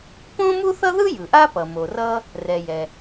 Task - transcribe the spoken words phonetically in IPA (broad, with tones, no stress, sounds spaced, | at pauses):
p õ˥ m u˥ θ ʌ˥ ð ɯ˥ j ɯ˩ ʔ a˥ p ʌ˩ m o˩ r ʌ˥ | r ɛ˩ j ɛ˩